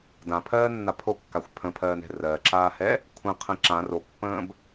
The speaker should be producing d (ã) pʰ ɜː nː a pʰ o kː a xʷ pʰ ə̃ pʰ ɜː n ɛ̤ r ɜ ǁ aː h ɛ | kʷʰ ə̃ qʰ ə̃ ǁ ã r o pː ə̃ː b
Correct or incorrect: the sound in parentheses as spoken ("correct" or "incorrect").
correct